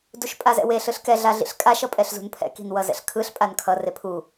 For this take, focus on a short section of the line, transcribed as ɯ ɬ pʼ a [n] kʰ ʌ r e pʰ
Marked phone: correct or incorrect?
correct